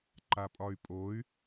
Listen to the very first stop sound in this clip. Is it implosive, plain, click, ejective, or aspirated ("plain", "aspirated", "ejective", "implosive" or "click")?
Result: click